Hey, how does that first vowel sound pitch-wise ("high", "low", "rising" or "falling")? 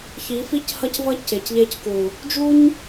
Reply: rising